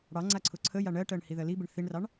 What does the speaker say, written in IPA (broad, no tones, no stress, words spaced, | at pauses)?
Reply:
ɽɑ ŋ͡ǀaǀʰʊǀʰəja ɳɜʈɜɳ hiðɜlibɪɳ θiɳrɑɳ